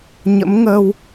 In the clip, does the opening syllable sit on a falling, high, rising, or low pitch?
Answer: rising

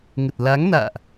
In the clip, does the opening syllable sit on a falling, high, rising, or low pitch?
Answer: low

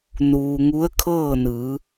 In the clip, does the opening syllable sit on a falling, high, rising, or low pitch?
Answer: low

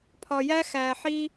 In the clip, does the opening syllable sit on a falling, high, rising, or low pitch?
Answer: low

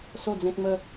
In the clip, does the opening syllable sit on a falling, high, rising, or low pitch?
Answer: falling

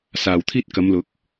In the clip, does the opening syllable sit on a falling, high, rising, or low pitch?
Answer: low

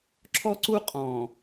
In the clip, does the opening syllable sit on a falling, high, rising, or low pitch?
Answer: high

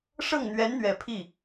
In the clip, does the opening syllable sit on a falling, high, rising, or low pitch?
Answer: falling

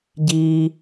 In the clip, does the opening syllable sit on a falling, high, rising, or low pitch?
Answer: low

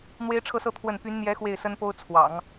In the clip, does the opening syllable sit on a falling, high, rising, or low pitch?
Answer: high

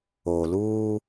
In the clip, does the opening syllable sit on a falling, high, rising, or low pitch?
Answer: low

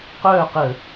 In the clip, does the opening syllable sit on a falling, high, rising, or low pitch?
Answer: falling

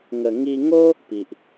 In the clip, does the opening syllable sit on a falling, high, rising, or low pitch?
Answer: low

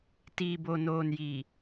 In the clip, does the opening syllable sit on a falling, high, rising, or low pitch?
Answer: low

